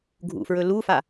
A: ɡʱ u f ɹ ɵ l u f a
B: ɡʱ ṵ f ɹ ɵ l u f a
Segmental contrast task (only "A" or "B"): B